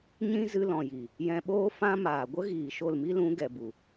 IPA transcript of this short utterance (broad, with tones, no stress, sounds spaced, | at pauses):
ɲ ĩ˦ z ɨ˧ l ɔ̃˨ j i˨ | j ɛ̃˧ ɓ oː˦ f ã˦ m aː˨ ɡʷ ə˦ ɣ iː˨ ʃ o˦˨ l m i˦ l ũ˨˦ ɡ ɛ˨ b u˨